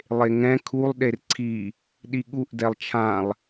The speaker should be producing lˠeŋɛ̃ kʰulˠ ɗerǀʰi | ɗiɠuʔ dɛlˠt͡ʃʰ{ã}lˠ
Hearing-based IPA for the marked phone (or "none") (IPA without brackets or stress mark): ã